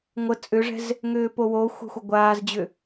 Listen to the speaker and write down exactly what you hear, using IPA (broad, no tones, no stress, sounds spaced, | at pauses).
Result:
ŋʷ ə t͡sʼ ʏ ʐ ɛ̤ z | ŋ ʏː p o w o xʷ ə̤ xʷ ə ɡʷ aː z d͡ʑ ʏ